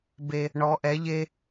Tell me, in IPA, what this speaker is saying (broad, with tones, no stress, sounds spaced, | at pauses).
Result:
b e˧ | ɳ ɔ˧˥ ʔ ɛ˧˥ ʎ e˥